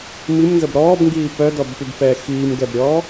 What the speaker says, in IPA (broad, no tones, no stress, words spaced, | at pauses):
mimnzəb ɾɔːbŋɡiː pœdɔbpybfɛː xiːmɡɛbɾʲɔː